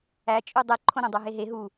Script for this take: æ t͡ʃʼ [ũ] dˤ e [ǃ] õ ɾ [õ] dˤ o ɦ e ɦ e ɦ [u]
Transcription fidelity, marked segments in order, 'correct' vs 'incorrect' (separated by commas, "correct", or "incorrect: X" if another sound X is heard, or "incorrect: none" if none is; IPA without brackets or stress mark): incorrect: u, incorrect: ǃʰ, correct, correct